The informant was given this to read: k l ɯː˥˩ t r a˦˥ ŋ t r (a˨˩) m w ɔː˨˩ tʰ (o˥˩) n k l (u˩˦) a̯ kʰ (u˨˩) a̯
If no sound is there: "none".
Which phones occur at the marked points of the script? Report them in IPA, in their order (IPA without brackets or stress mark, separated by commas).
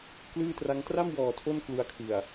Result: a˥˩, o˥˩, u˧, ɯ˨˩